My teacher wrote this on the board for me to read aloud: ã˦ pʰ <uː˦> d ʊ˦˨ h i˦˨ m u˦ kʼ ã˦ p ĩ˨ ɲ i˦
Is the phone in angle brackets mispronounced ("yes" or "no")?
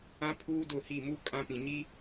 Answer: no